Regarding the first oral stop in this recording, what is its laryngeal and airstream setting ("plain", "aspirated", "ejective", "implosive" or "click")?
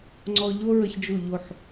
click